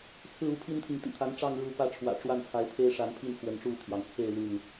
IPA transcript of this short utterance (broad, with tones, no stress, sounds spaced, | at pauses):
t͡sʰ ɹ̩˥˨ u˥˨ pʰ i˦ n t̪ʰ i˨ ŋ t̪ ḭ˨˩ t̪ʰ a˨˦ n ʈ͡ʂ ɑ˥˨ ŋ ɻ u˥˨ p ä˥˨ ʈ͡ʂʰ w ä̰˨˩ ʈ͡ʂ w a˥˨ n t͡sʰ a˨˦ ɪ̯ t̪ʰ e˦ ɪ̯ ʂ a˨˦ n pʰ i˥˨ n x w ə˨˦ n ʈ͡ʂ u˥˨ t̪ʰ j ɑ˩ ŋ t͡sʰ e˥˨ ɪ̯ l y˥˨ n